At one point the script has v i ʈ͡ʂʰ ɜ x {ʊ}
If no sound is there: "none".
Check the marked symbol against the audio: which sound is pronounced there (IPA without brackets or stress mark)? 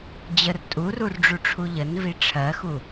u